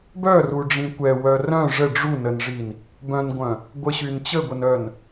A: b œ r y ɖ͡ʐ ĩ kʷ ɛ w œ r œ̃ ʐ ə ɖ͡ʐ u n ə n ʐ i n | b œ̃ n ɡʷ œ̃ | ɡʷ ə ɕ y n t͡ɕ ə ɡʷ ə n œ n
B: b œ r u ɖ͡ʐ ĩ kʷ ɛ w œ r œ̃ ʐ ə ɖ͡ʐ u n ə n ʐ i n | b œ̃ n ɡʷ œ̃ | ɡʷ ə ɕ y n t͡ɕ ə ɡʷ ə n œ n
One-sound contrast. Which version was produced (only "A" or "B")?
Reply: B